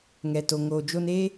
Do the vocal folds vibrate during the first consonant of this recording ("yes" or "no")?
yes